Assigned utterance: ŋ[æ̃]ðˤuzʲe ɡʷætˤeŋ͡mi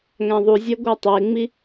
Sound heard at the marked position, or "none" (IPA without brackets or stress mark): æ̃